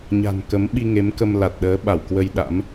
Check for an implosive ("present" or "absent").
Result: present